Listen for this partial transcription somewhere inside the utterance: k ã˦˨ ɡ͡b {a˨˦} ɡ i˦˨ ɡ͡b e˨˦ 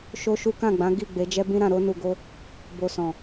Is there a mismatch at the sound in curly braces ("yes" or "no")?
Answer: yes